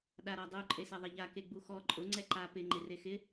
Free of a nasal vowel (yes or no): yes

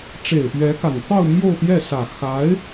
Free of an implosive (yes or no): yes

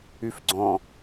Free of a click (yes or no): no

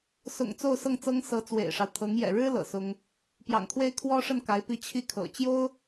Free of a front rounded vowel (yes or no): yes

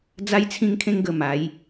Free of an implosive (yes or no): yes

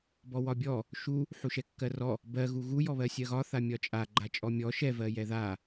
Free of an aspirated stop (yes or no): yes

